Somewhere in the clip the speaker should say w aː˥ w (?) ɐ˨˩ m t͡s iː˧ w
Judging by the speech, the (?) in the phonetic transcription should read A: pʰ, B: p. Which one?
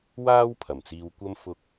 A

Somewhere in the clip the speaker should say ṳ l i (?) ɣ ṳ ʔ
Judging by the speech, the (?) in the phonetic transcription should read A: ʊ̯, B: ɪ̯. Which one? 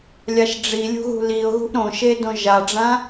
A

